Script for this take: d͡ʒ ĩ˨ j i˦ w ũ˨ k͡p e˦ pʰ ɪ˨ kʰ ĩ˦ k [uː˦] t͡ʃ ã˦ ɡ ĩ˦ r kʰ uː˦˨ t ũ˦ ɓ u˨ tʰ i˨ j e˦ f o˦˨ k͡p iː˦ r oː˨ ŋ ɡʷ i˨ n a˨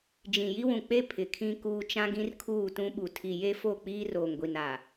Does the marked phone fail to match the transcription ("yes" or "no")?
no